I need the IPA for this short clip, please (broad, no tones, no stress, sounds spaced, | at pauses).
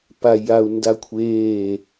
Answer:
p a j a u̯ n d a kʷʰ eː